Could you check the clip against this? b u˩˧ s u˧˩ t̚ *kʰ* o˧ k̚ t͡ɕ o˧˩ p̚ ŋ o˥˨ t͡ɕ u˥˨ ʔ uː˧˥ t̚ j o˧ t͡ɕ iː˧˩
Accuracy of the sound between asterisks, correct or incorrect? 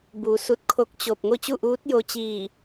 correct